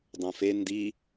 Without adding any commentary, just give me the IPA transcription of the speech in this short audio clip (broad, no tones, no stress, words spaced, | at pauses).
dˤɐ̃fe ndi